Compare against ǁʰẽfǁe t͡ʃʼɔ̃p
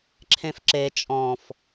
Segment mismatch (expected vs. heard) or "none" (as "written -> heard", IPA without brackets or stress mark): p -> f